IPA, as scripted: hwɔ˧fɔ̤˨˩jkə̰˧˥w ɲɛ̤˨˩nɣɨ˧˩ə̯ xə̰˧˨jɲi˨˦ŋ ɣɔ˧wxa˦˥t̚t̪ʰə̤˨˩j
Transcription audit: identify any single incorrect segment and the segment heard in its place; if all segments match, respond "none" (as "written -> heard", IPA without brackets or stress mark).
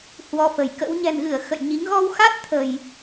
ɔ̤˨˩ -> ə̤˨˩